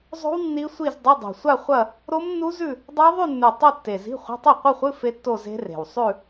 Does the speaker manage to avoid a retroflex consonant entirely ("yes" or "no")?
yes